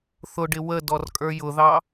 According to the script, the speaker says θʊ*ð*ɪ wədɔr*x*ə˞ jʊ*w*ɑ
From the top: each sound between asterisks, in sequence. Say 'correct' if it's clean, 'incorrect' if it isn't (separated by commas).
incorrect, incorrect, incorrect